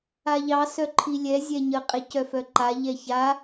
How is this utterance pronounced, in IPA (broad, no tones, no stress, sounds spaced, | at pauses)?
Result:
a ʎ ɑ s œ ǃʰ i lʲ ɛ zʲ ɛ ɲ ə qʼ e c œ f œ ǃ a ʎ ɛ ç a